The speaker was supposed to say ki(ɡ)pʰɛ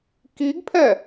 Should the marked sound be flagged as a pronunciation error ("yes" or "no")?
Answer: no